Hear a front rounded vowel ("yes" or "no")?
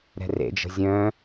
yes